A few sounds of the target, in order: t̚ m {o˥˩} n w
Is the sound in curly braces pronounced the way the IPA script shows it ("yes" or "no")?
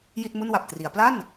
no